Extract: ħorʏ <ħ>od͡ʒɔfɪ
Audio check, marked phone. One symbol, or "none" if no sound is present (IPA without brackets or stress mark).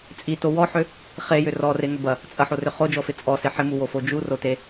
χ